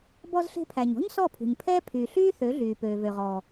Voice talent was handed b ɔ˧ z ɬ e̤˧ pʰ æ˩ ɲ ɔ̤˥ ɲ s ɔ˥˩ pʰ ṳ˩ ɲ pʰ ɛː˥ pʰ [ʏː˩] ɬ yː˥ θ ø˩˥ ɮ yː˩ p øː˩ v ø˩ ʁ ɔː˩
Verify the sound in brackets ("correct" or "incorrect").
incorrect